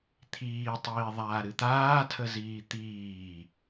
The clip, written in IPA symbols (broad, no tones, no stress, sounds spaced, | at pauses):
t̪ʰ iː tˤ iː ðˤ aː ɾ ɨ t̪ aː tʰ ə z iː t̪ iː